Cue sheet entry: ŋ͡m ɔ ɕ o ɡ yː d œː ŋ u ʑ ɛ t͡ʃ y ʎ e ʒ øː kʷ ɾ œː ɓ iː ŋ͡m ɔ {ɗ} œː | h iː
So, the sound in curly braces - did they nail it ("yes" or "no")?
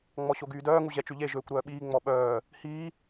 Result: no